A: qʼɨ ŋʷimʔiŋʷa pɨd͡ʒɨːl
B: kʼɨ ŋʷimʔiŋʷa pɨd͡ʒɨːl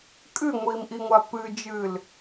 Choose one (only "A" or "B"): B